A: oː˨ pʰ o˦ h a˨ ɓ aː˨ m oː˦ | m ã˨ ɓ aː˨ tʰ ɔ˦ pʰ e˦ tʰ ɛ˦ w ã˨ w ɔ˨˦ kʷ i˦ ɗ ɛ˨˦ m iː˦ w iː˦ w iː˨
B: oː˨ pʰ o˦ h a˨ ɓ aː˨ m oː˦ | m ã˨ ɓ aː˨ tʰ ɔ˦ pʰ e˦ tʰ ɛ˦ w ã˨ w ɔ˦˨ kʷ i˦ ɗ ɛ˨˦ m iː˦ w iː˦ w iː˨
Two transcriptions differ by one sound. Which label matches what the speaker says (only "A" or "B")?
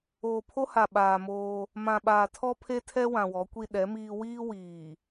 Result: A